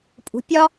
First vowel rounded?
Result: yes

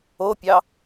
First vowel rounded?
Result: yes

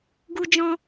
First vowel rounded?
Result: yes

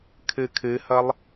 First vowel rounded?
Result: no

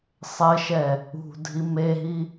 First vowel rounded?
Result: no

